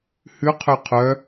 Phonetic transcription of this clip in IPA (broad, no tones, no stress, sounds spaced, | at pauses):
h ʉ qʰ ø qʰ œ